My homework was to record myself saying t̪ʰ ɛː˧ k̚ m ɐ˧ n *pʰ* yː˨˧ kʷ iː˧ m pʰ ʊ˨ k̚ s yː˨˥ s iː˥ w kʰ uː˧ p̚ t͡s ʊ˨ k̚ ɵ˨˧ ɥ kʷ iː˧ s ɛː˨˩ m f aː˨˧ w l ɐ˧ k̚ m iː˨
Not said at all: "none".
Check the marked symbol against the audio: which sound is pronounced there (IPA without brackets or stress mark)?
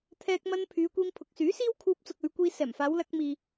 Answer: pʰ